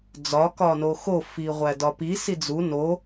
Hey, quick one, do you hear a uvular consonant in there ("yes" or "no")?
yes